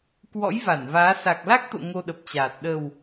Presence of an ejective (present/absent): absent